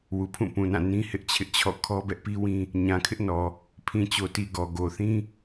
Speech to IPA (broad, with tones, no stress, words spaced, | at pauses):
wu˨pʰũ˦˨ pũ˨nã˦˨ nĩ˦hɪ˦ʔt͡ɕʰɪ˦ʔt͡ɕʰɔ̰˦˨ kʰɔ˦bɛ˦ʔpi˦wĩ˦ | ɲã˨kʰɪ˦ʔnɔ˨ | pʰĩ˨t͡ɕo˨ti˨ ɡɔ˨ ɡo˨θĩ˦